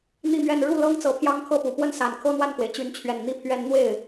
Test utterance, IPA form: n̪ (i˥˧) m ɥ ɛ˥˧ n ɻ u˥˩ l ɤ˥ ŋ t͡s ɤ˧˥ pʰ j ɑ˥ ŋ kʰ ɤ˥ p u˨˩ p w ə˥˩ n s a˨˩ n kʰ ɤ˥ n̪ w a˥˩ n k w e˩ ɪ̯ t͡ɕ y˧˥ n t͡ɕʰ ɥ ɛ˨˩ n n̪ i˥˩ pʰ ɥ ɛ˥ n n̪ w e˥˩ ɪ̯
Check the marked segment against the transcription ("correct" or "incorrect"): correct